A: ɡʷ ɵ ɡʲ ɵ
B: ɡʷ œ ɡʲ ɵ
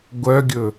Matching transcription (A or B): B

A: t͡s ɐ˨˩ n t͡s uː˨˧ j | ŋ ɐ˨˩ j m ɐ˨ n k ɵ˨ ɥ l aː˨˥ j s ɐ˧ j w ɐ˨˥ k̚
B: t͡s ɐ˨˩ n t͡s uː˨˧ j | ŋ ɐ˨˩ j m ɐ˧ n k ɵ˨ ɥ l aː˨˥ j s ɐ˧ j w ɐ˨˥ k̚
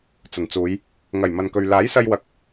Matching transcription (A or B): A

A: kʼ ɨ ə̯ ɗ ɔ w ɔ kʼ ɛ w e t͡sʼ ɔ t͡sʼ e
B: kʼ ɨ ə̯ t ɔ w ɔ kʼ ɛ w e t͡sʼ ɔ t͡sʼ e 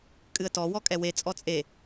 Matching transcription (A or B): B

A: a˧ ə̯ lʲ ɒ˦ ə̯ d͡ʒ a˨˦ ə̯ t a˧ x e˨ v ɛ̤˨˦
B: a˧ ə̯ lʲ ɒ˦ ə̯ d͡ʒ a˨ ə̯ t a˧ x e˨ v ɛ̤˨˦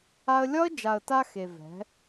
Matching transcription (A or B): B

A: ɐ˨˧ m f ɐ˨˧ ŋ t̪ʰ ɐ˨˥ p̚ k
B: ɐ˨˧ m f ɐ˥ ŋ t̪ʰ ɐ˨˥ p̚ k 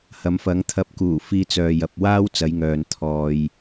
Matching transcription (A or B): A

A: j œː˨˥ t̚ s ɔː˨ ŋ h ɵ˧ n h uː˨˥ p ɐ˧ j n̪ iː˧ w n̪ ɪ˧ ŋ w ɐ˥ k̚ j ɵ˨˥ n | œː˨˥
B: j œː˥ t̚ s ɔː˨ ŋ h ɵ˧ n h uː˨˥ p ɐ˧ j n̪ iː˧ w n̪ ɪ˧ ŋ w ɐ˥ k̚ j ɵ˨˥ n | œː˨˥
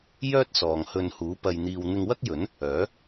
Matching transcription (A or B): B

